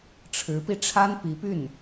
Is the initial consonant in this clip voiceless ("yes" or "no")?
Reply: yes